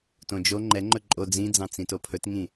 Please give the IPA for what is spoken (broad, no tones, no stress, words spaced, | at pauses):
tõd͡ʒo ŋ͡ǃɛŋ͡ǃɵ ǃʼo d͡zĩd͡zɑ̃ t͡sĩtopʰɵtŋĩ